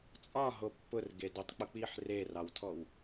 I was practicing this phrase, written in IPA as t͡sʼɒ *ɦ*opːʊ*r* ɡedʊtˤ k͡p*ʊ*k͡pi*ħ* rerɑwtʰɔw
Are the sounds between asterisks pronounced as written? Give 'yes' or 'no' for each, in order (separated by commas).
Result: yes, yes, yes, yes